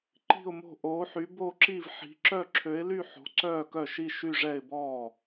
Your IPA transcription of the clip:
ǃ i̤˥˧ ʊ̯ m o̤˥˧ ʔ oː˧˥ ħ y˧˥ b o˥˧ ǁ i˥˧ v ħ i̤˧˥ ǁ œ˥˧ ǁʰ ø˧˥ ɪ̯ l y˥˧ ħ o̤˧˥ ǀ œː˥˧ k œ˥˩ ʃ i˥˧ ʃ y˥˧ ʐ ɛ˥˧ ɪ̯ b ɔː˥˩

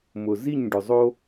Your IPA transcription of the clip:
m ʊ˩ z i˥˩ ɲ ɖ ʊ˩ zˤ o˧

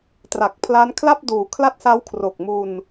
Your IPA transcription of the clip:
t r a˨˩ k̚ pʰ l a˦˥ n kʰ l a˥˩ p̚ d uː˩˦ kʰ l a˦˥ t̚ s a˦˥ w kʰ r o˨˩ k̚ m u˧ n

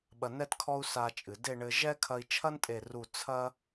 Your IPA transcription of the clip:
ɓ ɐ˧ n ɛ˥ t kʰ ɔ˥ u̯ s a˧ t͡ʃʼ ɨ˩˧ d e˥˧ ɳ ɘ˧ ʒ ɛ˥ kʰ ɐ˧ i̯ t͡ʃʰ ɐ˥ n tʼ e˧˩ r u˧˩ t͡sʰ ɐ˥

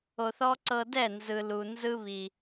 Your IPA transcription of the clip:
o˨ θ ɔ˦ ǀ ɤ˧ d ɛ˦˨ n z ɯ˨ l u˨ n z ɯ˦ β i˨

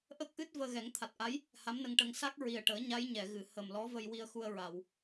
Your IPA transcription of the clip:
ʔ ə˦˥ k̚ ʔ ɨ˦˥ t̚ v əː˧ ɣ ɛ˨˩˦ ŋ t̪ʰ a˨˩ t̚ ʔ a˧˥ j | h a˧˥ m n ə˧ ŋ ʈ ə˧ ŋ s a˦˥ k̚ ɹ i˨˩ ə̯ ʈ əː˨˩˦ ɲ a˧˥ j ɲ ɛ˨˩˨ ɣ ɨ˨˩˨ h ə˨˩ m l ɔ˧˥ v ə˧ j w i˧ ə̯ x u˧ ə̯ ɹ a˨˩˨ w

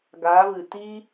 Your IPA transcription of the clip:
ɡ aː˨˦ v ɨ˨ t i˧

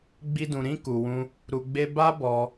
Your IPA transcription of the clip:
ɡ͡b i˦ d ũ˧ ɾ ĩ˧ k u˧ w ũ˦ | ɾ u˧ ɡ͡b e˦ b a˦ b ɔ˧

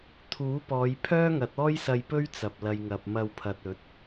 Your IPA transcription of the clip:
t̪ʰ uː˨˥ p ɔː˨˧ j pʰ œː˥ ŋ ɐ˨˥ t̚ ɔː˥ j s ɐ˧ j p ɵ˥ ɥ t͡s ɐ˨ p̚ l ɐ˨ j ŋ ɐ˨ p̚ m ɐ˧ w pʰ ɐ˨ t̚ ɵ˨˥ t̚

